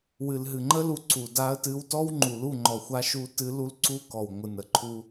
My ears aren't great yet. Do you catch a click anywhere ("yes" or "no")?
yes